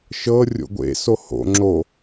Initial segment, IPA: ʃ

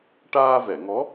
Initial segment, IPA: ʈ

